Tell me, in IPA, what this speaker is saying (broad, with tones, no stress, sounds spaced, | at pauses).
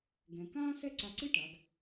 ɡ ɛ̃˧ k ãː˥ s ɛ˥ ǀ a˧ ǀ i˥ ʈ a˩˧ ɡ